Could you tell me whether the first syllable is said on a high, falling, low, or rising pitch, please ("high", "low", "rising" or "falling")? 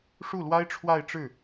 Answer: falling